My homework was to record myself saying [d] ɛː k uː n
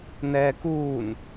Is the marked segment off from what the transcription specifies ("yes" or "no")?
yes